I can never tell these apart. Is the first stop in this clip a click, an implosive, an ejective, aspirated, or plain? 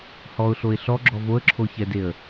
click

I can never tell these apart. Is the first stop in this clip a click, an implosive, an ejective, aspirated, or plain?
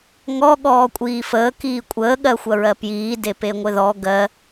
implosive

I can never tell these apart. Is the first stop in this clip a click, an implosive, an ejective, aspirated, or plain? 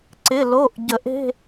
click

